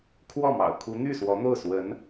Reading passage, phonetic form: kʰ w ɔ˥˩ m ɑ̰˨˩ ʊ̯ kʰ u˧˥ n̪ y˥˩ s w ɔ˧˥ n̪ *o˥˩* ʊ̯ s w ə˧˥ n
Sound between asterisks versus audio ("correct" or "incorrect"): correct